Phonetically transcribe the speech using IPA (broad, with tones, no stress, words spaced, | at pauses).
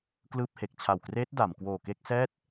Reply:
klɯː˥˩p̚he˨˩k̚ t͡ɕʰa˨˩wkreː˦˥t̚ da˩˦m kwoː˨˩ke˥˩k̚sɛː˥˩t̚